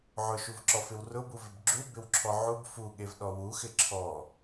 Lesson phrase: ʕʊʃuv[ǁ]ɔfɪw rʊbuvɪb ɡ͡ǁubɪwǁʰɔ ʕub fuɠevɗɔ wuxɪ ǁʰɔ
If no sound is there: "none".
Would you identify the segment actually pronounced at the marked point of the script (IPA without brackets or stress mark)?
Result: ǁ